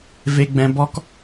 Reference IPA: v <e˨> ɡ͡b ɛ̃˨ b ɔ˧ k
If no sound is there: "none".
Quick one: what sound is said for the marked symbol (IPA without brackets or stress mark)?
e˨